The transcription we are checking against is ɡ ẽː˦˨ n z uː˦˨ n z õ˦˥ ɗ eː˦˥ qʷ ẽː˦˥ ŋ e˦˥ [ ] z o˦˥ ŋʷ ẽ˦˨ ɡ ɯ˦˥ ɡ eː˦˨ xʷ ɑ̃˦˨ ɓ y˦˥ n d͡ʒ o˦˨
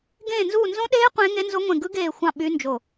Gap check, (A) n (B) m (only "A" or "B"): A